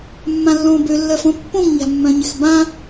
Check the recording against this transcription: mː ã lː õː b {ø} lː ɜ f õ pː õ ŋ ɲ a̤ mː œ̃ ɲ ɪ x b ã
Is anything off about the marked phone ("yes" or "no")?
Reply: no